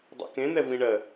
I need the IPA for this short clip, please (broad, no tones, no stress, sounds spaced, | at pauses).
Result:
dˤ o̰ k ẽ n̪ ɛ v ĩ ɳ ɜ